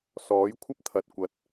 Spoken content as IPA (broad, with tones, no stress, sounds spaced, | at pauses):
s ɔː˨˥ j kʷʰ ɐ˥ p̚ t̪ʰ ɐ˨ t̚ kʷ ɐ˨˥ t̚